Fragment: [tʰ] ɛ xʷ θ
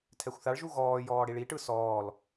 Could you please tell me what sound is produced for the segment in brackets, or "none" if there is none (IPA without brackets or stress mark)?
tʰ